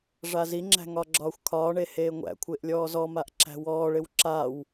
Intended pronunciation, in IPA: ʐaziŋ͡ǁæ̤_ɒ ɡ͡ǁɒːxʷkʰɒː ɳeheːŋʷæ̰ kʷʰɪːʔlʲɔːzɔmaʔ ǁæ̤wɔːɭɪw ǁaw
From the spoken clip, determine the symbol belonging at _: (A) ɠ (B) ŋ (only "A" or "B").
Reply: B